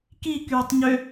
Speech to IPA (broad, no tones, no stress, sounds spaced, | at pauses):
k i k yː tˤ ɲ ø